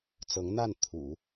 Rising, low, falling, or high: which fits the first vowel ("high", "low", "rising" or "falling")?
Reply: rising